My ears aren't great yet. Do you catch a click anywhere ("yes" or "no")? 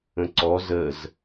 yes